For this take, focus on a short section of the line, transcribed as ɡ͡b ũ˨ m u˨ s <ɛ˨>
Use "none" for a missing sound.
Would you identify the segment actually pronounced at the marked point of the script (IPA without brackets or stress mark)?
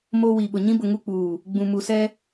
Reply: ɛ˦